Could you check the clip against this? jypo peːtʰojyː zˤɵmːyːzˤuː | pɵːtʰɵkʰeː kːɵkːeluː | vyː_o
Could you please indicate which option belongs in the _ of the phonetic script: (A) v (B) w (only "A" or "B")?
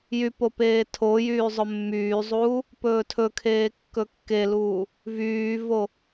A